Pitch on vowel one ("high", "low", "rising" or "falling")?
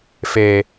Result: low